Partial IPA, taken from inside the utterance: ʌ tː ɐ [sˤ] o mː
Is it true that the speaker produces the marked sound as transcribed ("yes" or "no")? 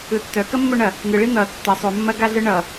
yes